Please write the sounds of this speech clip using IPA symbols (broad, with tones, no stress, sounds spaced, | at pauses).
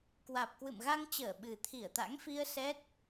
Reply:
k w aː˨˩ p̚ k w ɨ̰˧˨ m ɣ a˧ ŋ t͡ɕ əː˧˩ ɓ ɨ˨˩ t̪ʰ i˧˩ ə̯ t̪ a̰˧˥ ŋ f i˧ ə̯ s ɛ˦˥ t̚